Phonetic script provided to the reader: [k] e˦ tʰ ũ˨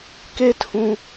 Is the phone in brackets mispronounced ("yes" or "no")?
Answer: no